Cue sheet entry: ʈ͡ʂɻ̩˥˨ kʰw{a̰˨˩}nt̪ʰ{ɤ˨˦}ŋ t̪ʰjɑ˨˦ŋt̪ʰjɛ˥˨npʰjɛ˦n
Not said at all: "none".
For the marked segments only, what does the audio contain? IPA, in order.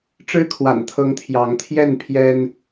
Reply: a̰˨˩, ɤ˨˦

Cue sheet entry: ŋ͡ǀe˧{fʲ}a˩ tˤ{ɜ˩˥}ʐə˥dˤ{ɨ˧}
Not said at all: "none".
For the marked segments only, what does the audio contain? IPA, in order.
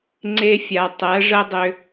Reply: fʲ, ɜ˩˥, ʏ˧

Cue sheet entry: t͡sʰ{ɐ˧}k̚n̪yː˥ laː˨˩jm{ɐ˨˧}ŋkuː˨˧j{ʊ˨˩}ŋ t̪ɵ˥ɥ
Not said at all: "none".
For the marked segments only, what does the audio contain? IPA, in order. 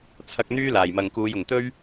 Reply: ɐ˧, ɐ˨, ʊ˨˩

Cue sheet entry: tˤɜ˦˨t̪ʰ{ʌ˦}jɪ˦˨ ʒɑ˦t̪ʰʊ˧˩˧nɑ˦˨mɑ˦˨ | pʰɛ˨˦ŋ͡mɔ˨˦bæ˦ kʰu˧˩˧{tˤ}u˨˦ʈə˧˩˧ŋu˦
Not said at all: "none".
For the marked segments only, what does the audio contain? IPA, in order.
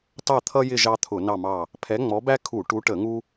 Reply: ʌ˦, ʈ

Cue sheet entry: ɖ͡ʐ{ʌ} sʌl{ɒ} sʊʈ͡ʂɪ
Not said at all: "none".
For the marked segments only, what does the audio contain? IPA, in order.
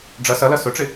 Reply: ʌ, ʌ

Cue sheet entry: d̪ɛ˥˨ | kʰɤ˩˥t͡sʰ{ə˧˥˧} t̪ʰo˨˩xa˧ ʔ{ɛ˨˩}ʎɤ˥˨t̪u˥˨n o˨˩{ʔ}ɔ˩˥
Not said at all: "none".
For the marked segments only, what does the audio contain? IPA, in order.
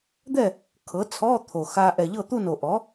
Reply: ɔ˧˥˧, ɛ˨˩, ʔ

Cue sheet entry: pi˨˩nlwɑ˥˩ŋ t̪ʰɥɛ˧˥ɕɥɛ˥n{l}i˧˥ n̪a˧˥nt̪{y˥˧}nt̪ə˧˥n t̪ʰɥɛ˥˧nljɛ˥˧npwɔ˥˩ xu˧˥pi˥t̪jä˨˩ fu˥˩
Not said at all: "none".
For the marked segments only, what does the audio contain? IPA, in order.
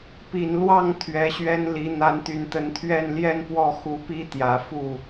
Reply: l, y˨˩

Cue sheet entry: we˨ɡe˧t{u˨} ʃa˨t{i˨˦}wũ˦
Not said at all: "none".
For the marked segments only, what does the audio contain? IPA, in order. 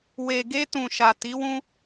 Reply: ũ˨, i˨˦

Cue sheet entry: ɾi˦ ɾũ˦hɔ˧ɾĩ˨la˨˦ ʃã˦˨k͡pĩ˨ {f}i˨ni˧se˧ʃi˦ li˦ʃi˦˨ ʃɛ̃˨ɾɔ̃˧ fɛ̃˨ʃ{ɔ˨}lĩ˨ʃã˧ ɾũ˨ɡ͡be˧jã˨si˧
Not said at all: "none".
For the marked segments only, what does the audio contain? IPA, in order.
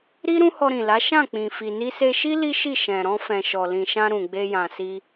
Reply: f, ɔ˨

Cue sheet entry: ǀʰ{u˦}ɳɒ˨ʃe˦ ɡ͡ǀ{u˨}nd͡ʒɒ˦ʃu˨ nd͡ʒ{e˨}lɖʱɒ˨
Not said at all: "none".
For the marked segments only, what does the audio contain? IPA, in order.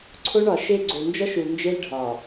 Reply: o˦, o˨, e˦

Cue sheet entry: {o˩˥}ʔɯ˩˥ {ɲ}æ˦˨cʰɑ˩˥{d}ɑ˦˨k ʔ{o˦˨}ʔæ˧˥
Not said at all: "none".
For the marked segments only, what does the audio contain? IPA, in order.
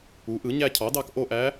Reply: u˩˥, ɲ, d, o˦˨

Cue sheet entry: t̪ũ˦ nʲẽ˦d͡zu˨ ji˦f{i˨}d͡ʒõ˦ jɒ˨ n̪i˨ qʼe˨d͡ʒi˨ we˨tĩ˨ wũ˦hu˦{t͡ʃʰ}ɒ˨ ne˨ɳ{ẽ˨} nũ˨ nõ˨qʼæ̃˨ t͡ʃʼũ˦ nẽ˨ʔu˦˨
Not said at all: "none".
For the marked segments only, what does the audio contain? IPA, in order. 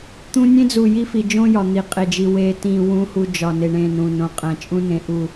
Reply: i˨, d͡ʒ, ẽ˦˨

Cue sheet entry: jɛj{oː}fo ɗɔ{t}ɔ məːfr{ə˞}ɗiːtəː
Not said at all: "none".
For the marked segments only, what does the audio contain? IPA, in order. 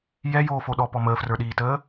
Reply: oː, p, ə˞

